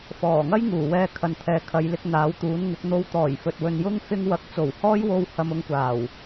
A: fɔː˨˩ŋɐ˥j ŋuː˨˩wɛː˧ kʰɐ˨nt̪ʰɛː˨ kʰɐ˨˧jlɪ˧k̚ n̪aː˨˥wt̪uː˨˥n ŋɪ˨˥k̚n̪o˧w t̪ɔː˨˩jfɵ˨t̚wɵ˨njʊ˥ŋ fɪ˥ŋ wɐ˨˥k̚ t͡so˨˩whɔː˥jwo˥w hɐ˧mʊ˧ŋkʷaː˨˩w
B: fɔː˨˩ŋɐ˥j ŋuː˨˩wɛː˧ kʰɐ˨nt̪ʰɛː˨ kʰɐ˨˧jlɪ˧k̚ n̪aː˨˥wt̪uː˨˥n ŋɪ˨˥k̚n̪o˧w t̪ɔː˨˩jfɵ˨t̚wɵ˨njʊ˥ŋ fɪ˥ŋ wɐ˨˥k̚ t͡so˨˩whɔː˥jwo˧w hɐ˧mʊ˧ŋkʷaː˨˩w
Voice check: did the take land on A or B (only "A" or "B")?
B